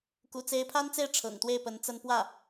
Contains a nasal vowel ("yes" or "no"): no